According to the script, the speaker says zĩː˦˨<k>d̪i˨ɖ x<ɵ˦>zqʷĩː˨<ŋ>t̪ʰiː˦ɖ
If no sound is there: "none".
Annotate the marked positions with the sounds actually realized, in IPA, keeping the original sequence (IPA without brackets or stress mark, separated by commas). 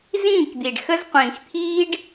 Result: k, ə˦, x